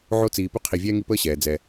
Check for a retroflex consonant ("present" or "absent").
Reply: absent